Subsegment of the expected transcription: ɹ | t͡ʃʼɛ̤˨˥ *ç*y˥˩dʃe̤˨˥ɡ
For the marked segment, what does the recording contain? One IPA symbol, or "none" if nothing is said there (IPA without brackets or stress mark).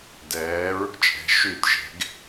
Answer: ʃ